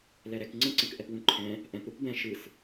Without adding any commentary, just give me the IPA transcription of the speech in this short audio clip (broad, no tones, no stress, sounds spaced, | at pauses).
l ɛ ɾ ɛ k ŋ͡ǀ ə̃ ǀ ə̃ k ʔ ɛ p w ũ ǃʰ ɛ̃ | ʔ ɛ̃ p ɾ ɯ p b ɛ̃ ʃ ɯ s